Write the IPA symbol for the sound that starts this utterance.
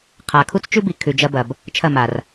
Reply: qʰ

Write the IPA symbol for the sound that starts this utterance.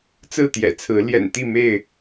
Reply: t͡s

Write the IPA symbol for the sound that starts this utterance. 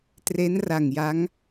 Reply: t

